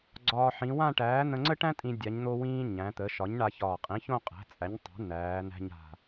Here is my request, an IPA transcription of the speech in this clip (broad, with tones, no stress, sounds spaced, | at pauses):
ɡ͡ǀ ɒː˧ ħ ĩ˩˧ w ã˥˧ ʈ æː˩˥ n̪ ə̃˧ ŋ͡ǀ ə˥ ʈ æ̃˥ tʼ ĩ˧ dʲ a˩˧ ɲ n̪ o˧ w ĩː˧ ɲ æ̃˩˧ t̪ ə˩˧ ʃ ɒ˩˥ ɲ ɳ a˧ ç ɒː˨˩ qʼ ĩ˩˥ ç õ˥˧ qʼ æ̤˩˥ t͡sʼ æ˩˥ ɲ tˤ æ̤˩˥ n̪ æː˩˧ n̪ æ̤˧ ɲ a̤˨˩